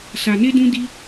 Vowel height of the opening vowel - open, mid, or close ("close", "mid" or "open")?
open